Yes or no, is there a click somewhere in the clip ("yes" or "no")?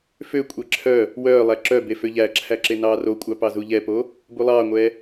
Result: yes